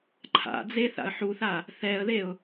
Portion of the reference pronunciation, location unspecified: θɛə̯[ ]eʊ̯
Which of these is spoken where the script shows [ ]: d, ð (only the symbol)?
ð